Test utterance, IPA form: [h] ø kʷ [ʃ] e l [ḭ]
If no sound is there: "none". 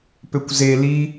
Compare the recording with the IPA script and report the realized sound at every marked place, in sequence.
p, z, i

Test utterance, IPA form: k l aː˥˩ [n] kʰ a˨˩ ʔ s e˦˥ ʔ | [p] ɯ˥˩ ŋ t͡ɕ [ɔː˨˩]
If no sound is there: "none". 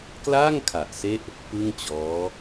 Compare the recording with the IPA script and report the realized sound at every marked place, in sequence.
ŋ, p, ɔː˦˥

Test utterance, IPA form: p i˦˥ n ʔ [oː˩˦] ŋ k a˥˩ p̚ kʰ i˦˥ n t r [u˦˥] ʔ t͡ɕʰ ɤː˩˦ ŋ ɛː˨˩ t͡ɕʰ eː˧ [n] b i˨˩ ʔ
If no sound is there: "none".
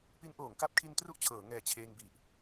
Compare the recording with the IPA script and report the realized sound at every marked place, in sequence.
oː˩˦, u˦˥, ŋ

